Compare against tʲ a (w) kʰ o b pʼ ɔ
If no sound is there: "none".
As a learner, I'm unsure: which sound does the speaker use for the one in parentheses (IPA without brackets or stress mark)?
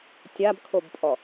b